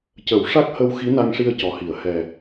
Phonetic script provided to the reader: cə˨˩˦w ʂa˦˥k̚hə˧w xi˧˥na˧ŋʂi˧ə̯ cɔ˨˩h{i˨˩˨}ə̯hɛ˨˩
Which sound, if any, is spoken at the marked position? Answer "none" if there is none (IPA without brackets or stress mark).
i˨˩˨